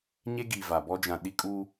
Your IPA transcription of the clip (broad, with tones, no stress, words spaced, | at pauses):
ɲe˦ɡi˨ va˨bɔ˦ d͡ʒã˨ɗi˦kʼu˦